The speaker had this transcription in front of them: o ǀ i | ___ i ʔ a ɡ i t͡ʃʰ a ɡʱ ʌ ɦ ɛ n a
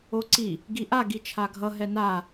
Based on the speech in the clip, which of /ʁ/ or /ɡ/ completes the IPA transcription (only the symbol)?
ɡ